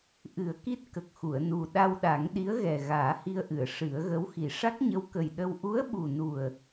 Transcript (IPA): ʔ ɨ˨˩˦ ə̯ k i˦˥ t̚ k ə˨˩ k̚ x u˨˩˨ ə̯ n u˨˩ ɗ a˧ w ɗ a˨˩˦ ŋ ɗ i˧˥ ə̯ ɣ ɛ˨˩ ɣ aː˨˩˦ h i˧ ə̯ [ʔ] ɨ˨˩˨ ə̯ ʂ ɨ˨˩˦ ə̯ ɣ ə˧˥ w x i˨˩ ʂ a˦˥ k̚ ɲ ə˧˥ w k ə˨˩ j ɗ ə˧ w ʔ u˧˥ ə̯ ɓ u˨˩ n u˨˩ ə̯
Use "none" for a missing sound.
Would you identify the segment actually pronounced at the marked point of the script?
ʔ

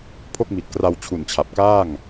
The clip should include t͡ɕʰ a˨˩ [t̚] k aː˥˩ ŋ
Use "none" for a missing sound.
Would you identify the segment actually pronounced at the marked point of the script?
p̚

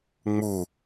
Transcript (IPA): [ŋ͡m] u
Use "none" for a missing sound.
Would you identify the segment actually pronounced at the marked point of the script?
ŋ͡m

